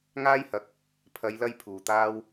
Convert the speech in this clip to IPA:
ŋ aː˥ j h ɐ˨˥ k̚ | pʰ ɐ˨˧ j l ɐ˧ j pʰ uː˨ t̪ aː˥ w

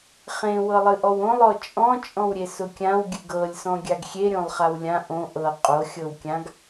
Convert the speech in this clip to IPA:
χ ẽ w ɤ lˠ ɨ ʔ ɔ w õ lˠ ɔ t͡ʃʼ ɔ̃ t͡ʃʼ ɔ̃ w ɾʲ e s ʊ kʲ ã w ɡʲ ɨ ɡ ɤ lʲ s ɔ̃ ɡʲ a ɡ xʲ e ɾʲ õ lˠ χ a w lʲ ã ʔ õ ʔ ɤ qʼ o xʲ ɤ w kʲ ã ɡ

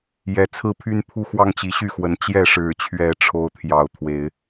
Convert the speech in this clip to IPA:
j ɛ˨˦ t͡sʰ ɹ̩˦ pʰ y˦ n pʰ u˦ x w ɑ˦ ŋ t͡ɕ i˨˦ ɕ y˥˨ x w ə˨˦ n t͡ɕ j ɛ˥˨ ʂ ɻ̩˥˨ t͡ɕʰ ɥ ɛ˦ ʈ͡ʂʰ o˦ ʊ̯ t̪ʰ j ɑ˥˨ ʊ̯ t̪ʰ w e˨˦ ɪ̯

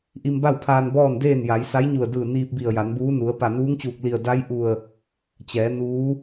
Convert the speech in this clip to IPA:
ʔ i˧ m b a˥˨ w pʰ aː˧ n b ɔː˥˨ n d eː˥˨ n j a˩˧ j s a˧˥ j ɲ u˧˩ ə̯ d ɯː˧˩ n iː˧ p̚ b i˧˩ ə̯ j a˩˧ n b uː˧˥ n u˩˧ ə̯ p a˧˩ n uː˧˥ ŋ t͡ɕ uː˧˩ k̚ l i˧˩ ə̯ d a˧˥ j ʔ u˧˩ ə̯ | t͡ɕ ɛː˩˧ n uː˧˥

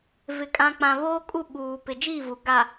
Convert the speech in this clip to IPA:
v ɪ˨ kʼ ã˨ k͡p ã˨ β oː˦ kʼ u˦˨ ɓ uː˨ p ɪ˨ d͡ʒ iː˦˨ v u˨ ɡ a˨

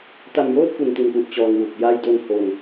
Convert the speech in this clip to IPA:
t a˧ m j oː˥˩ t̚ k u˨˩ n t i˨˩ n f u˨˩ ʔ t͡ɕ ɔː˧ ŋ w u˨˩ k̚ j a˧ j d o˧ n h o˧ n

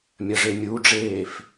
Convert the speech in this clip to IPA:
mʲ ɐ ʐ e mʲ u ɖ͡ʐ eː f

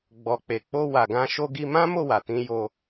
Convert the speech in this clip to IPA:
ɡ͡b ɔ˨ k͡p e˨ k͡p o˧ w a˨ ɡ ã˧ ʃ o˧ ɡ i˧ m ã˦ m o˦˨ w a˨ t ĩ˧ j o˧

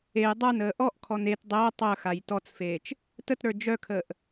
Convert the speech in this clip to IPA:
e j dˤ ə˞ n əː ʔ ɔ ʔ kʰ ɔ n e t dˤ əː tˤ œ x a j t ɔ t͡s f eː t͡ʃ | t ə t ɾ ə˞ d͡ʒ œ kʰ əː ʔ

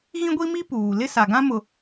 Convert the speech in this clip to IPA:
ɣ ĩ˦ ɡʷ i˦ m i˦ p uː˨ l ɪ˦ s a˨ ɡ ã˦ m ʊ˨

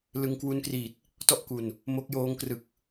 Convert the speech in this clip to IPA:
l ɯ˧ ŋ k w u˦˥ n k r iː˨˩ t̚ | t ɔ˥˩ ʔ k u˨˩ n | m o˦˥ k̚ j oː˦˥ ŋ k r ɯ˨˩ k̚

